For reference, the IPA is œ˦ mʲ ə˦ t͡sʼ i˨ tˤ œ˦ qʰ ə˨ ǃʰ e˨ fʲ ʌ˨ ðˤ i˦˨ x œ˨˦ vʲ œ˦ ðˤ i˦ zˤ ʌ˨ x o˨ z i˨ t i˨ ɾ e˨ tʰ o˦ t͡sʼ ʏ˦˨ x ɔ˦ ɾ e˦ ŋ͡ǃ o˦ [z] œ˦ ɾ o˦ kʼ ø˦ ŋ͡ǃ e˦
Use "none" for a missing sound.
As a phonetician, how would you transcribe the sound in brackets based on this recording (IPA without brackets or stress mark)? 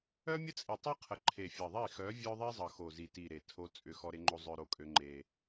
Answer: zˤ